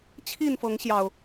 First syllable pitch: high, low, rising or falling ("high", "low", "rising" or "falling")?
falling